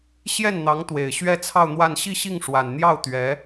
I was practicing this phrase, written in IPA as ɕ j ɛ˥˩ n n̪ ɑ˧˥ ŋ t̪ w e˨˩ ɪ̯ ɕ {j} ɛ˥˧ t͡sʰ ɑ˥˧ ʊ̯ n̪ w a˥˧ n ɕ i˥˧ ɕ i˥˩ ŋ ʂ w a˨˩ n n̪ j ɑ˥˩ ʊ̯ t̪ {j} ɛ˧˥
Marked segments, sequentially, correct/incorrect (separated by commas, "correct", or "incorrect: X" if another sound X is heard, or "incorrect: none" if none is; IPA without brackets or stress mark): incorrect: ɥ, incorrect: ɥ